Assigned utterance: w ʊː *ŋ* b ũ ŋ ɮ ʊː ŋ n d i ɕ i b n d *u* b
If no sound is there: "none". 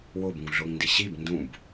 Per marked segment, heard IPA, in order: none, ũ

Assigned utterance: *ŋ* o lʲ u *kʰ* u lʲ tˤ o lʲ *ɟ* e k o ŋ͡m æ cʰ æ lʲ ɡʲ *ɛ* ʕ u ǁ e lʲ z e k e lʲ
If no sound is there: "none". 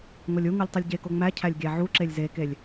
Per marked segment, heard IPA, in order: ŋ, ŋ, ɟ, æ

